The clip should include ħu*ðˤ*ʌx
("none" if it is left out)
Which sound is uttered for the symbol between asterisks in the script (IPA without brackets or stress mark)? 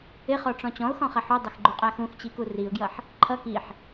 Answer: dˤ